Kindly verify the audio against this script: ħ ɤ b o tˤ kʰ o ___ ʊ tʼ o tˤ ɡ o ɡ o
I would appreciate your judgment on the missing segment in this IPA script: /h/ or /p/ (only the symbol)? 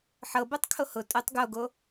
h